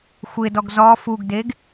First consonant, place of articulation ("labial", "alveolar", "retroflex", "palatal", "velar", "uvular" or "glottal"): velar